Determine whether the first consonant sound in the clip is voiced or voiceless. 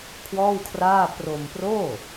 voiceless